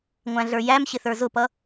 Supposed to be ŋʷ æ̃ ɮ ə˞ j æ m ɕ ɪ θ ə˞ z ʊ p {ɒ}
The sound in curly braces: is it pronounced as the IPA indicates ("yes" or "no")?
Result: no